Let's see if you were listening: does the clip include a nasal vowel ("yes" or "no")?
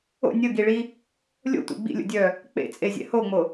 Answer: no